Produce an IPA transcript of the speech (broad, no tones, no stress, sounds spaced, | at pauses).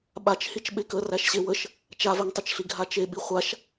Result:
ɓ a t͡ʃ h i t͡ʃ ɓ e k ə r æ ʃ ɕ e w ə ʃ | t͡ʃ a v ɛ ŋ tˤ ə t͡ʃ ɬ i ɡʱ a t͡ʃ e ɓ i χʷ a ʃ